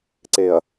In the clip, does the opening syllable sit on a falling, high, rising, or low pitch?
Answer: low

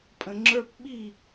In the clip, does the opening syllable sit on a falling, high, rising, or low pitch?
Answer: low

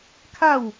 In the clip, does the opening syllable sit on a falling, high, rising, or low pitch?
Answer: falling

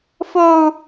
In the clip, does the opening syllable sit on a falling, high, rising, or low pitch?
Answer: high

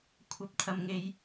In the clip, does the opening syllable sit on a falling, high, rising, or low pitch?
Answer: low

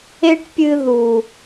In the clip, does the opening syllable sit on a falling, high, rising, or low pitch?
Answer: high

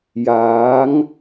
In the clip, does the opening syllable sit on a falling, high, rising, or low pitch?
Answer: rising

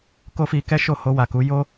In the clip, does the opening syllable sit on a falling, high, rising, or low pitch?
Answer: high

